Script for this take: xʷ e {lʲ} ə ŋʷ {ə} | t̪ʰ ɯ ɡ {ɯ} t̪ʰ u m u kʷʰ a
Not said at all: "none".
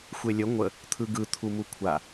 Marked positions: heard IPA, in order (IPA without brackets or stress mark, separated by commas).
lʲ, ə, ɯ